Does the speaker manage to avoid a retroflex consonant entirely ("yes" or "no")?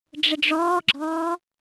no